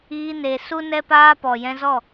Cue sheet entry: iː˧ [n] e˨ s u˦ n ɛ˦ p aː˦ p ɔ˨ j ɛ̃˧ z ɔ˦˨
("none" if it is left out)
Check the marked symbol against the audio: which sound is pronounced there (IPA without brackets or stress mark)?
n